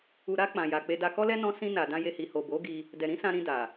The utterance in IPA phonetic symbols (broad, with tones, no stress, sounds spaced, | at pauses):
u˨ ɾ a˧ k͡p ã˨ j a˨ k͡p e˧ d a˧ k ɔ˦ l ɛ˦ n ɔ̃˦ s ĩ˦ n a˧ d ã˦ j e˦ h i˧ h o˨ b o˨˦ ɡ i˧ | d ɛ˨ ɾ ĩ˨˦ s ã˧ ɾ ĩ˧ d a˨